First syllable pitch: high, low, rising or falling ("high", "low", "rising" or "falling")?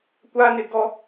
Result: high